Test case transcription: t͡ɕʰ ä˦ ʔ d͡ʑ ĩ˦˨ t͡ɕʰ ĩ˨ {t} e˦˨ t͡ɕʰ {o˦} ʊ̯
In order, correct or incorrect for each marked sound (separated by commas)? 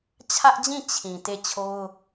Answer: correct, correct